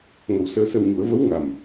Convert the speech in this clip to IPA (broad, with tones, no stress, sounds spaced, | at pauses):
ŋ ə˨˩ w s əː˧ s ə˧ w ɲ u˨˩˦ ə̯ v ə˧˥ w ŋ a˨˩ m